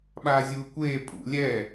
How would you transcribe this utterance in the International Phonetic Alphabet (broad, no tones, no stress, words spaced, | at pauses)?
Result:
ɓaːzʲuːkʷeː pʼṵ lʲɛ